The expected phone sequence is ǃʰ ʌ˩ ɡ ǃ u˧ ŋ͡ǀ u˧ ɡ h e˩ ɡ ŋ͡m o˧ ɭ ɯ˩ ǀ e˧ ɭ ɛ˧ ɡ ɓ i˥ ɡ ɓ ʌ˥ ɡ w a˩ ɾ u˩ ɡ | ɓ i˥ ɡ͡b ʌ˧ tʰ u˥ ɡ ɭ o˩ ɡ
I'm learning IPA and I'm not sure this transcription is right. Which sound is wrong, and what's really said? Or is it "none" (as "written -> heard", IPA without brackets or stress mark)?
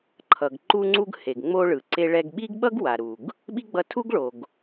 none